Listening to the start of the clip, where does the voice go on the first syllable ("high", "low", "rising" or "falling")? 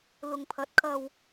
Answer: low